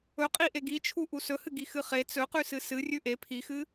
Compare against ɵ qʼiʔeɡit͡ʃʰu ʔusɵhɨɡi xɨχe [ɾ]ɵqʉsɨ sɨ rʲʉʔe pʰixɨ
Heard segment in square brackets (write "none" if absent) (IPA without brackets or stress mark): t͡s